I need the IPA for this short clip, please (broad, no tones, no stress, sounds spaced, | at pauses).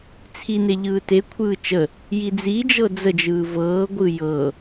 t͡sʰ i n e ʎ ɯː t e kʷʰ ɯː t͡ʃ ə | j i d͡z i d͡ʒ ɤ d͡z ə d͡ʒ ɯː v ɤː ɡʷ ɯ j ɤ